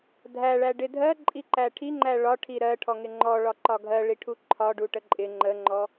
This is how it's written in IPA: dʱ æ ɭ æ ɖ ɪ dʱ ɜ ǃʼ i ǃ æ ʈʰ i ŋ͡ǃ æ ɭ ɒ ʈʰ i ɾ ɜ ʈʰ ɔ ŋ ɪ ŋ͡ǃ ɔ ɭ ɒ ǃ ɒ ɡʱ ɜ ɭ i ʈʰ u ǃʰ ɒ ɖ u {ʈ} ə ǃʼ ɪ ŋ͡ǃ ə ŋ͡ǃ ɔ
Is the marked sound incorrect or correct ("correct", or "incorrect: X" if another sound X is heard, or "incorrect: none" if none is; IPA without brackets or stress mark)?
correct